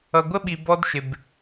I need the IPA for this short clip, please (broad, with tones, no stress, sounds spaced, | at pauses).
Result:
ʌ˨ ɡʷ ə˦ ɓ i˨ b ɔ˦ d ʃ ɪ˨ b